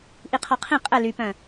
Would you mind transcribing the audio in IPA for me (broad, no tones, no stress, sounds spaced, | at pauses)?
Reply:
ʔ i qʰ ɔ qʰ ĩ qʼ ə l y p œ̃